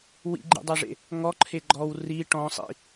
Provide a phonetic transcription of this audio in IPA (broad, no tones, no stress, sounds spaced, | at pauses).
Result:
w ḭ ɡ͡ǃ ḭ dˤ e ʐ ḛ | ŋ ɔ ǃʰ e ɡ͡ǃ ɔ w r i ʈ ɔ̃ sˤ ḭ